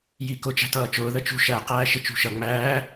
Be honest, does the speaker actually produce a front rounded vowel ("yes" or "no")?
no